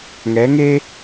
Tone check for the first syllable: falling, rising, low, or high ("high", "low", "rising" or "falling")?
rising